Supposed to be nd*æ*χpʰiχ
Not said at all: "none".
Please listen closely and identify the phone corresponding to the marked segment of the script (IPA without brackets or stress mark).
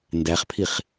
æ